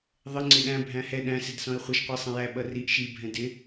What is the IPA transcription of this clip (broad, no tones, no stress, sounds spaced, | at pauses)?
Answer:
ðˤ ɪ ŋ͡ǀ ɪ ɗ æ̃ bʱ æ̃ h ɛ ɗ æ̃ s ɪ d s ɔ̃ e̯ χʷ ʌ ʃ qʷ i sˤ ə̃ j æ ɓ ʌ r i ʔ ʃ i bʱ ɛ̃ d ɪ